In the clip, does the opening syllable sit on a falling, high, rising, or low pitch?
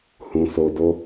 low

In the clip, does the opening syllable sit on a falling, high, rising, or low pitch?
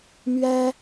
high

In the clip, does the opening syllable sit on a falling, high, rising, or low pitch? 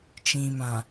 low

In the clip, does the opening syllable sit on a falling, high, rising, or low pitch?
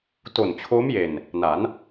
low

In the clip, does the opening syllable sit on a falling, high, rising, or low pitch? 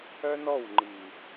high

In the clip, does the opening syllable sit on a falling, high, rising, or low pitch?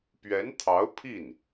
rising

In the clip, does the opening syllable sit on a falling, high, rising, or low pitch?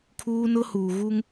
high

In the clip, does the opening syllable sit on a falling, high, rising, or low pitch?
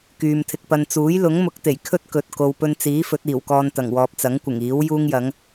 low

